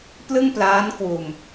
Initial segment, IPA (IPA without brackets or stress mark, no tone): p